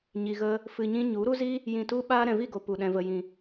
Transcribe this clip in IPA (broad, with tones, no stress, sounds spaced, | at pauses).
ɲ i˧ ɣ ə˦ | f ɨ˧ ɲ ĩ˦ ɲ u˨˦ ɾ u˦ z i˦ | j ĩ˧ t u˦ ɓ aː˦ ɾ ɛ̃˨ v i˦˨ ɡ o˨ p u˨ ɗ ɛ̃˨ v ə˨ j ĩ˨